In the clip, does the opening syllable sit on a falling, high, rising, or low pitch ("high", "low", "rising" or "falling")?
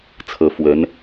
rising